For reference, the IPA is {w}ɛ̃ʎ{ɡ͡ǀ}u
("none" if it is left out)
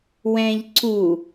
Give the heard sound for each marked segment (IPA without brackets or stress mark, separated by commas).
w, ǀ